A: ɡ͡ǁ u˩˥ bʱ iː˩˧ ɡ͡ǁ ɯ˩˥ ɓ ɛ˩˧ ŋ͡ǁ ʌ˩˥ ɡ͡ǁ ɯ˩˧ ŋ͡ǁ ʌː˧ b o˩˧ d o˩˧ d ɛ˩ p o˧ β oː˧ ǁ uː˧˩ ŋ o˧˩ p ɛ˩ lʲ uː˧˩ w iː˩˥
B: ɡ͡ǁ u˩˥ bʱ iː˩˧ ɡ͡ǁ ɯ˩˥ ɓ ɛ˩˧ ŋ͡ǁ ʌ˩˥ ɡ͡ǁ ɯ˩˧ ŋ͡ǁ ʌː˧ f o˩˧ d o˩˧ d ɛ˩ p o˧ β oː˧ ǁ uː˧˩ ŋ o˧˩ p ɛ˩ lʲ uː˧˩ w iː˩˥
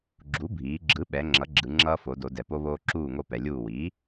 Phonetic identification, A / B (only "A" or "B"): B